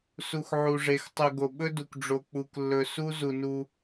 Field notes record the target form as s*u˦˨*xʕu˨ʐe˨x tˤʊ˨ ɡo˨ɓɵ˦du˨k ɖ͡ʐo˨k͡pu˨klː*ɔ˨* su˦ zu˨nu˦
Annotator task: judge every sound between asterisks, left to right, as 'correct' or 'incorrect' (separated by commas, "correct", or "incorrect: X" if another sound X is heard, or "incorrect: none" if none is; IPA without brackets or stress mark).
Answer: incorrect: u˨, incorrect: ɵ˨